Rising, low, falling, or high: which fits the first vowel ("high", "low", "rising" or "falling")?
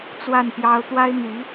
falling